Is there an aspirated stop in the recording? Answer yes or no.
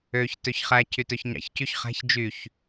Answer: yes